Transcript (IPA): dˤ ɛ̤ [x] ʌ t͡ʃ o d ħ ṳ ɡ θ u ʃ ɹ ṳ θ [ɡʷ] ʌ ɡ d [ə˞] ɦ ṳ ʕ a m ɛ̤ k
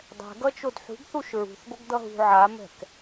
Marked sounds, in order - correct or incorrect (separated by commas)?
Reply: incorrect, correct, incorrect